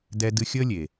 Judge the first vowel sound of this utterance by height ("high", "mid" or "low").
mid